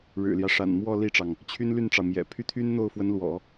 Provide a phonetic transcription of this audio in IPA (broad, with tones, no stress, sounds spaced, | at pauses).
ɻ ɻ̩˨˩ l j ä˦ ʂ a̰˨˩ n m w ɔ˥˧ l i˥˩ ʈ͡ʂ ɑ˩ ŋ | t͡ɕʰ y˥ n l y˥˩ n ʈ͡ʂ ɑ˩ ʊ̯ m j ɛ̰˨˩ pʰ y˥˩ t̪ʰ y˥ n n̪ o˥˩ ʊ̯ f w ə˧˥ n l w ɔ̰˨˩˦